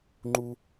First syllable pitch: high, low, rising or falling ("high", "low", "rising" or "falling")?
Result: high